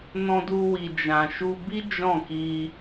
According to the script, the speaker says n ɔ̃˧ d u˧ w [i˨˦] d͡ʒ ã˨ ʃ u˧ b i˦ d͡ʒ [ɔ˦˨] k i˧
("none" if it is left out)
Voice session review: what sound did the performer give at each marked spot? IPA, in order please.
i˨, ɔ̃˦˨

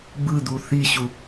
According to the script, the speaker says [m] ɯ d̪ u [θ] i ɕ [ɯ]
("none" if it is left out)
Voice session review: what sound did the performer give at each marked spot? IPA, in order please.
b, θ, u

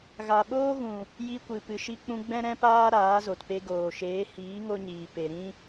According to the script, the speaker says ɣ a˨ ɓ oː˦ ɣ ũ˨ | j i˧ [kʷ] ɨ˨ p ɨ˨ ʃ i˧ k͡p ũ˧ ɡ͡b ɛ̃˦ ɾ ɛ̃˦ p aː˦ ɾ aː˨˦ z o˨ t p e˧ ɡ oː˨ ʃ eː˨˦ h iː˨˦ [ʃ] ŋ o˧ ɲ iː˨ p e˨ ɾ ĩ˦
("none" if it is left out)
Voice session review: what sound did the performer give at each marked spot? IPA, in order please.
kʷ, none

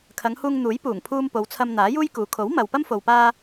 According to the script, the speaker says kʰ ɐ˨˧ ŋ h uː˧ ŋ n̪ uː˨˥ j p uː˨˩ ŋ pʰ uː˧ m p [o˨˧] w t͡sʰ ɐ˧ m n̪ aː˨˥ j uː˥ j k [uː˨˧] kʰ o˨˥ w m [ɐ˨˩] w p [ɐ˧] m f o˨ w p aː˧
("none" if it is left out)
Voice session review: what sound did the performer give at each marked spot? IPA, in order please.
o˨˧, uː˨˧, ɐ˨, ɐ˥

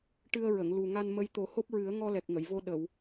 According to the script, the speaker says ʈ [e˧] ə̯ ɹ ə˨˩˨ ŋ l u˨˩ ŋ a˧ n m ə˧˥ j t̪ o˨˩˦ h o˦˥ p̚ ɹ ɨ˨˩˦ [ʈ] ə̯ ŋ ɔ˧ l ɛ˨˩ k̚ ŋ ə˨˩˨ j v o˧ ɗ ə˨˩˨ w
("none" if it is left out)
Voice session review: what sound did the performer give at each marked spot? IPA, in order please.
ɨ˧, none

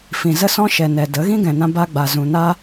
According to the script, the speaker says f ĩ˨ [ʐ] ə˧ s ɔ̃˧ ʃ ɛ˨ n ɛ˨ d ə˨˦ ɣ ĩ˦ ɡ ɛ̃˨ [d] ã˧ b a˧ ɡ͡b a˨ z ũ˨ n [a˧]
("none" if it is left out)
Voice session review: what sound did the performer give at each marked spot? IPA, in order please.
z, n, a˧

